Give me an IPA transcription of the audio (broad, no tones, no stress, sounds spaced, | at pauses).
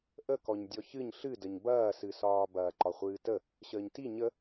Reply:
ʔ ə k ɔ ɲ dʲ ɔ ç ɨ ɲ ɬ ɨ d ə ɲ b ɐː s ɨ s ɒː b ɐː ǃ ɒ χʷ ɨː t ə | ɕ əː ɲ t i ɲ ə